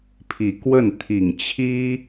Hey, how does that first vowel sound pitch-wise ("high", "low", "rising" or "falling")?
low